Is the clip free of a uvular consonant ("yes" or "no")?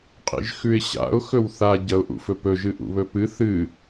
no